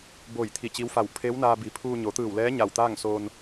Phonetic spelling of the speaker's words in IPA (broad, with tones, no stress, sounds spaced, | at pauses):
b o˧˩ j t̪ʰ i˧˩ t͡ɕ i˧˥ w f a˧˩ w pʰ eː˧˥ w n aː˧ b i˩˧ pʰ uː˧ ɲ o˩˧ t̪ ɯː˧˩ w l ɛː˧˥ ɲ a˧˩ w t̪ aː˥˨ ŋ s oː˧ n